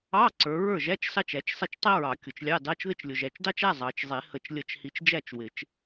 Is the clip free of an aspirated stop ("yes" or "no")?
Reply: yes